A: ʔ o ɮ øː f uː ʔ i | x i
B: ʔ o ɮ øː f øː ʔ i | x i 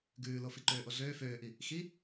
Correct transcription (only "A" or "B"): B